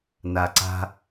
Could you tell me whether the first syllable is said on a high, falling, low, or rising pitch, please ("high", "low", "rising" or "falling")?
low